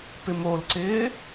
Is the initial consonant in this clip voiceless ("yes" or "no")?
yes